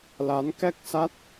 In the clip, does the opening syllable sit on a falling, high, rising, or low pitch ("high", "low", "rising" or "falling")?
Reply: rising